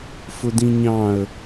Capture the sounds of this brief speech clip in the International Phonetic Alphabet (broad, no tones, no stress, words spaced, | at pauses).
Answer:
fʊdĩɲɑ̃ə̯